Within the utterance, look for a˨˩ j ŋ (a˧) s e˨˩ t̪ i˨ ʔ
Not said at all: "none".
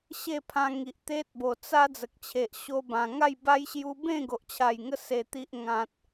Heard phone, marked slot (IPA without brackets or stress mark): ə˧